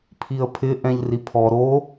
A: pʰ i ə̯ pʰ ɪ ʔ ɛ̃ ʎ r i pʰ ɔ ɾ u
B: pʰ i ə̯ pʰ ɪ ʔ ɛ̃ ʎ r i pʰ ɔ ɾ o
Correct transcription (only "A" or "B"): B